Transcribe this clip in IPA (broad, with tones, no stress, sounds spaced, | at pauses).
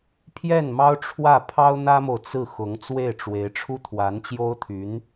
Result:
pʰ j ɛ˥˩ n m ɑ˥ ʊ̯ ʈ͡ʂʰ w ä˥˩ pʰ ɑ˥ ʊ̯ n̪ ä˥ m o˨ ʊ̯ t͡s ɹ̩˥˩ x ʊ˧˥ ŋ t͡s w e˥˩ ɪ̯ ʈ͡ʂ w e˧˥ ɪ̯ ʈ͡ʂʰ u˥ t̪ʰ w a˧˥ n t͡ɕ j o˥ ʊ̯ t̪ʰ y˧˥ n